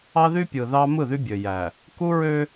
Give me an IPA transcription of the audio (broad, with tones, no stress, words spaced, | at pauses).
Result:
ɑ˦ðy˦pʲɯ˨ðɑ˦ mɯ˦˨ðy˦bʲø˨ jæ˨ | ku˦ɹø˦